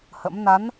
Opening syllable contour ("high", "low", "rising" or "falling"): rising